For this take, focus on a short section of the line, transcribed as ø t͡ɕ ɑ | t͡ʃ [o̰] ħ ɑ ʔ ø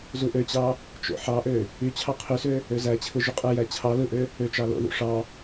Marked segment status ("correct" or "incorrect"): correct